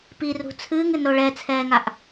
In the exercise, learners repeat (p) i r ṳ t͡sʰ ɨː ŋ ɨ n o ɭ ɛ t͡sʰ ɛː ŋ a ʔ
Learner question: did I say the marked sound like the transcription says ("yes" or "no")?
yes